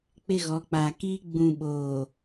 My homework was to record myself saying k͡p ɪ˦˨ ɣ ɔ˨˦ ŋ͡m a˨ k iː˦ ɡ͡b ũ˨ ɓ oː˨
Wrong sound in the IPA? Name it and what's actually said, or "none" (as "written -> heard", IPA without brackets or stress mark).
ŋ͡m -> k͡p